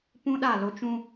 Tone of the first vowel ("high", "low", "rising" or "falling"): high